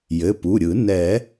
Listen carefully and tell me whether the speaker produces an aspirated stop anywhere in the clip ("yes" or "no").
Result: no